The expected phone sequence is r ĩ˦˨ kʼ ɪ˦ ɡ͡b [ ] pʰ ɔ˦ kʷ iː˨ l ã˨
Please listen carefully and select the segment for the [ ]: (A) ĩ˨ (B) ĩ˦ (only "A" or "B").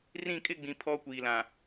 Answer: A